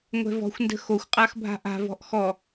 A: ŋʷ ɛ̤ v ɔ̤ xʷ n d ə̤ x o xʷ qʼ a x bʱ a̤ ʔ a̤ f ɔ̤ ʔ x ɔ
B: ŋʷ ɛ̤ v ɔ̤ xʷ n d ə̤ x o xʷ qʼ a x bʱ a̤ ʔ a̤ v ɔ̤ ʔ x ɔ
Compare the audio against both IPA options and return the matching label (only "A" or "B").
B